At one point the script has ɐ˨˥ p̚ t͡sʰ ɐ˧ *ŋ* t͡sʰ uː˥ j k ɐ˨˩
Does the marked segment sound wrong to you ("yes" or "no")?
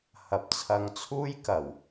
no